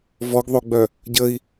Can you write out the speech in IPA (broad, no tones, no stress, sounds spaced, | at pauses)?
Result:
v ɔ ɡ ðˤ o ɡ͡b œ | ɟ ə i̯